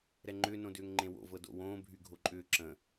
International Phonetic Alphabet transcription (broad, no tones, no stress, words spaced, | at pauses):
ɾɛŋ͡ǃʏːnõ dʏːŋŋ͡ǃẽwo̰vɤ do̰wõː bʱyɡʱoǃʼʏː ǁə̃